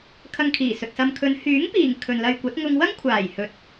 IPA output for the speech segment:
kʰ ɐ˧ ŋ kʰ iː˨˩ s ɵ˨ t̚ s ɐ˨ m kʰ ɵ˨˧ n h yː˨˥ ŋ p iː˨˩ ŋ kʰ ɵ˨ n l ɐ˧ j kʷ ɐ˨˥ t̚ ŋ ʊ˧ ŋ w ɐ˥ ŋ kʷʰ aː˨˩ j h ɵ˨ t̚

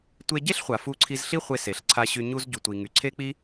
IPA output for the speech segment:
tʷ e˧ ɟ e˥ ɬ χʷ a˩ f u˧ ǀʰ i˧ z ɬ i˥ χʷ e˧ s e˩ ɬ ǀʰ a˧ ɕ y˧ ɲ u˧ z ɟ u˩ tʷ i˩ ŋ y˩ ǀʰ e˥ k͡p i˥

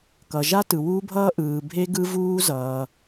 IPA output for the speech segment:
k ʌ˨ ʒ a˦˥ t ɯ˨ w u˦˥ bʱ ʌː˦˥ ʔ ɯː˨ bʱ e˦˥ ɡ ɯ˦˥ v uː˦˥ z ʌː˨

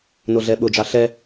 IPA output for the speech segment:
n o ɮ ɛ ɓ ʊ d͡ʒ ɑ ɬ ɛ

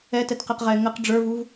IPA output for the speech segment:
ɛ t ɛ t q ɛ q ʁ ɛ ŋ ə q ɖ͡ʐ ə˞ v u v

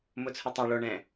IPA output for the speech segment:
m ʊ t͡sʰ ʊ tˤ a ɭ o ɳ ɛ̃

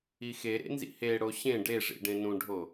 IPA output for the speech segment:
i x e ɾ ḛ n z ḭ h e ɽ o ɕ ẽ ɖ e ʐ ḭ ɖ ẽ n ũ ɖʱ o

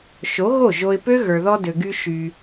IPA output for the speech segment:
ʃ o˨˦ ɣ o˦˨ ʒ o˧ ɪ̯ p ø˦ ɣ ə˞˨ ð ɔ˧ d ø˨ ɡ y˧ ʃ y˧

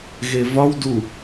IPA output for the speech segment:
ɣ e v ɒ w d u

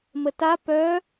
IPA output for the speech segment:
m ə t a p œ

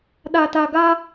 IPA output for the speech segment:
ɗ a˨ t a˨ ɡ a˦

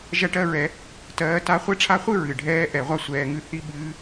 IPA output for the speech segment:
ʒ ɐ˥˩ ʈ ɜ˥˧ ɹ ɛ˨˦ | t ɜː˨˦ t a˦˥ χʷ ɛ˥˩ ʈ͡ʂʰ a˦˥ χʷ ɨ˥˧ ɹ ɨ˨˩ ɖʱ ɛː˦˥ ʔ ɛ˨˩˦ ʁʷ a˥˧ sʷ ɛː˨˦ ŋ ɨ˥˩ θ i˥˧ ɓ ɨː˦˥

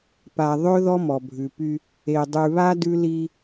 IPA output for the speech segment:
p a˨ ðˤ ɵ˦ ð ɔ˦ m ɔ˨ bʱ ʉ˨ p y˦ | e˨ dˤ ʉ˨ β a˦ d ʉ˦ l i˦

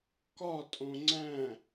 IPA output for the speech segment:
k ɒ tʼ õ ŋ͡ǀ æ̃

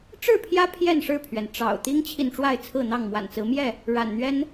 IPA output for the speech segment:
ʈ͡ʂ ɻ̩˥˨ pʰ j ä˦ pʰ j ɛ˥˨ n ʂ ɻ̩˥˨ pʰ ɥ ɛ˩ n ʈ͡ʂ ɑ̰˨˩ ʊ̯ t̪ i˦ ŋ t͡ɕʰ i˨ n ʈ͡ʂ w a˥˨ ɪ̯ t͡sʰ ɹ̩˥˨ n̪ ɑ˥˨ ŋ m w a̰˨˩ n t͡s ɹ̩˨˦ m j ɛ˥˨ | ɻ a̰˨˩ n n̪ ɥ ɛ˦ n

